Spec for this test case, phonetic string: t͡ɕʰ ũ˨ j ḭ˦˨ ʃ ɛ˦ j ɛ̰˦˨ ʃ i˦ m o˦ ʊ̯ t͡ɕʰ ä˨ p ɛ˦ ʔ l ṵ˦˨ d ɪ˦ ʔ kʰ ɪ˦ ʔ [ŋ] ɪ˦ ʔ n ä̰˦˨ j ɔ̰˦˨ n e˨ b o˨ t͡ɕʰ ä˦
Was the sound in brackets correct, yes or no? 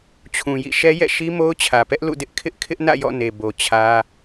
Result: no